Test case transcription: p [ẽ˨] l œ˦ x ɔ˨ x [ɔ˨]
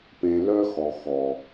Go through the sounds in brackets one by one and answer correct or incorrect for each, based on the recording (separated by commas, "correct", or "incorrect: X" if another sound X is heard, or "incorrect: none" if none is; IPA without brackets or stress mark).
correct, correct